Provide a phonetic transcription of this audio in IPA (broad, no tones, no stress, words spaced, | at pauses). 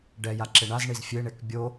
ɖɛjaǁɪ ɳazɳiz fʲeɳek bʲo